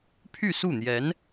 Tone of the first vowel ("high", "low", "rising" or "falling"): falling